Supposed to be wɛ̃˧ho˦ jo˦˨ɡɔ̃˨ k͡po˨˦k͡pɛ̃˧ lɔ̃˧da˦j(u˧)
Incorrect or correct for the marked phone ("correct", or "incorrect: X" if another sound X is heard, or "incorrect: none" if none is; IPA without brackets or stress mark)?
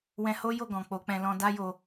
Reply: incorrect: o˧